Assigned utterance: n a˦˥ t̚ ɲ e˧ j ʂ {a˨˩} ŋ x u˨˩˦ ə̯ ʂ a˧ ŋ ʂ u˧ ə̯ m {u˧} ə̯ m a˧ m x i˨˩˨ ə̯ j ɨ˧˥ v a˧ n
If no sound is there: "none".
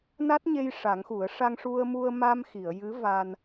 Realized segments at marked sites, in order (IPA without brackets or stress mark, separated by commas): a˨˩˦, u˧